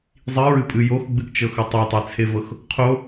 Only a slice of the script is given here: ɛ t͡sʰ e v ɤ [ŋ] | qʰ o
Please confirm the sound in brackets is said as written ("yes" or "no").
no